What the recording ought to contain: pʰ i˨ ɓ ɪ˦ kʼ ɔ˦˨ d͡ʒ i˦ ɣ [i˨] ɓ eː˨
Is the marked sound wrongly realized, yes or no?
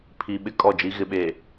yes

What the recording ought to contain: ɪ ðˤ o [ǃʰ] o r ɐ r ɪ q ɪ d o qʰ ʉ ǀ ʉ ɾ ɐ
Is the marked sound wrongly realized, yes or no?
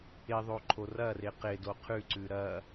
no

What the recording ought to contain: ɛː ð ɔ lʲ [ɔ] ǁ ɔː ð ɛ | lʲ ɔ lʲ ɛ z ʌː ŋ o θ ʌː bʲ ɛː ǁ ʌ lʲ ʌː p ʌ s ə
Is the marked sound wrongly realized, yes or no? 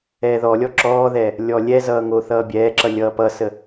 no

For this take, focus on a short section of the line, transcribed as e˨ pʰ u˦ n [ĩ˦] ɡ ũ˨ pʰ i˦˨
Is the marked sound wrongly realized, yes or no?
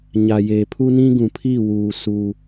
no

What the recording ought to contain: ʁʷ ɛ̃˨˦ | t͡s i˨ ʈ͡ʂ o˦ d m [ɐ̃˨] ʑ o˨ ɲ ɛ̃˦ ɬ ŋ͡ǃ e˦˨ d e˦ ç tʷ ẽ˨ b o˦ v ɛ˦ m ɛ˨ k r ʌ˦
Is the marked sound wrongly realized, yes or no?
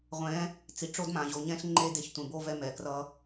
yes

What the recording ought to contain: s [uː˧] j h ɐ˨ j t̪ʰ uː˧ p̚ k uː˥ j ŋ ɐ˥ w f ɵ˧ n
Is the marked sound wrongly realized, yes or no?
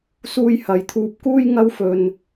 no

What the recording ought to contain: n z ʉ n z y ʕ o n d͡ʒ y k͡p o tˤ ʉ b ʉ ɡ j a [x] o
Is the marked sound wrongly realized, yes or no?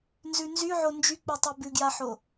yes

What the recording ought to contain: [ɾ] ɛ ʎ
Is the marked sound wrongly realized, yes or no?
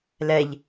yes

